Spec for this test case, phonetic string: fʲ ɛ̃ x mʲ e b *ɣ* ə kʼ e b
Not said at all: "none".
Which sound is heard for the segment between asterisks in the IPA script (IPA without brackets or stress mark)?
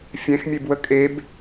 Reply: w